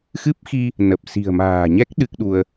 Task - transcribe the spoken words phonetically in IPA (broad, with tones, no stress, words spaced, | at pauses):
xɨ˦˥p̚xi˧ | nə˨˩p̚ si̤˨˩ə̯ma̤ː˨˩ɲɛ˦˥k̚ ɗɨ˦˥k̚ɗu˧ə̯